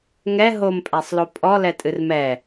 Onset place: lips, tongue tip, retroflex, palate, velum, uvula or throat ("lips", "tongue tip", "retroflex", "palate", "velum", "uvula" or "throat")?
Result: velum